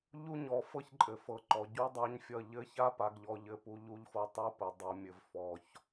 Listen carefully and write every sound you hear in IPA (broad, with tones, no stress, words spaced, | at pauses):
ʎu˦ɲɔ˨fɤ˦ç ǃʼɘ˨fɤ˨ ǃɔ˨ɟu˦dˤa˦ɲfʲʌ˦˨ ʎɘ˦ça˦pa˨ɡʎɔ˨ ʎɘ˦pu˦ ʎu˦ʎfɤ˦ tˤu˦pɘ˨ dˤɤ˨mʲɘ˨v fɔ˨ç